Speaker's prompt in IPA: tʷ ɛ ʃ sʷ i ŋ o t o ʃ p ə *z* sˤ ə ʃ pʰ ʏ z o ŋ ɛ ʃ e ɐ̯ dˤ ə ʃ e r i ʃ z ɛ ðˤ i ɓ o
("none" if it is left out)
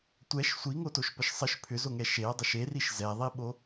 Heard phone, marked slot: ʃ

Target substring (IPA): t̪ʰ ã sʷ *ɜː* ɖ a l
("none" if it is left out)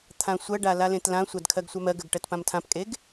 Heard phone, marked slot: ɜ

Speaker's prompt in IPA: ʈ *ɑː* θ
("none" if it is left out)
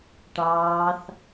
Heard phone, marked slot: ɑː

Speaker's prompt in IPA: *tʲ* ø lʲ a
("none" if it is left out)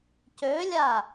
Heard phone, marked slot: c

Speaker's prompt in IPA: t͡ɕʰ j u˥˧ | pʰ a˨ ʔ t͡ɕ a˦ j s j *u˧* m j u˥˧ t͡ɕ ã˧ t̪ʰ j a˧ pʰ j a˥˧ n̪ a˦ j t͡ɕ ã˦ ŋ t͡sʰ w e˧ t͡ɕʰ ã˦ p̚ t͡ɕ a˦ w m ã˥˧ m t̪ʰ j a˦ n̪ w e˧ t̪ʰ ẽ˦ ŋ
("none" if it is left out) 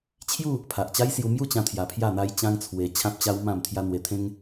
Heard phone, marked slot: u˧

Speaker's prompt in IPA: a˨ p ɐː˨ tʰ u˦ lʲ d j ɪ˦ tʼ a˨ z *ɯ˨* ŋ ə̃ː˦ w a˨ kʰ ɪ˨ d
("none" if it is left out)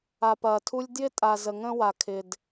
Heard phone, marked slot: ə˨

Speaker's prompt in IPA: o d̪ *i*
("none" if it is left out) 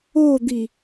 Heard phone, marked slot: i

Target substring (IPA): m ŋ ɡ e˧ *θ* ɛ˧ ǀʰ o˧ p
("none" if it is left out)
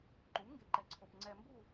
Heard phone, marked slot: ǃ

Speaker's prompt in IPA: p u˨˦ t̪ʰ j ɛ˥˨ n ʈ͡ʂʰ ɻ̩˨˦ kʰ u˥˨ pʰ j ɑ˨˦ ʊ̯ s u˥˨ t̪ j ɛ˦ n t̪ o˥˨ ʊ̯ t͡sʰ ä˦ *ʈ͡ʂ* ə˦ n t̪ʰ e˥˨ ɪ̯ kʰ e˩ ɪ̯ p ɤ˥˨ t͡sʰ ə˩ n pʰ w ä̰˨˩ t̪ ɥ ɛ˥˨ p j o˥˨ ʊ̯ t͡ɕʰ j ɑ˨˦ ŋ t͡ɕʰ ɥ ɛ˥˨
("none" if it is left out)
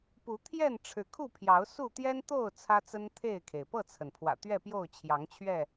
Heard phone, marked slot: t͡s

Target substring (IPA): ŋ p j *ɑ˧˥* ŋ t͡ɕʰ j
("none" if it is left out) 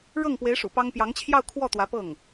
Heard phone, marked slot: ɑ˧˥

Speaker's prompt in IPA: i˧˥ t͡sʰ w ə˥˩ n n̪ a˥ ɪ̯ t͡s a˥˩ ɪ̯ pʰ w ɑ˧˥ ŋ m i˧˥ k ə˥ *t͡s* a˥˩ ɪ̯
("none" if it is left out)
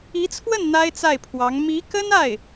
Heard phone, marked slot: n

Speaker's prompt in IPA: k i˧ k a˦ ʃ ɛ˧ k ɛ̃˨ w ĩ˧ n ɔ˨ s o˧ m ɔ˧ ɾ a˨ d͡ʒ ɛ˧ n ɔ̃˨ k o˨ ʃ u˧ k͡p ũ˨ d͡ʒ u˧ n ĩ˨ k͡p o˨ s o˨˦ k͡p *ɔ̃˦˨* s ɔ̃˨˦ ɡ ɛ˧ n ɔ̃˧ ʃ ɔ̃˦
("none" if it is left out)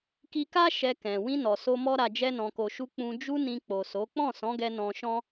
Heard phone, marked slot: ɔ̃˦˨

